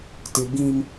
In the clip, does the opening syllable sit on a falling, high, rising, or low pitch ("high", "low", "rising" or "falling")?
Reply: high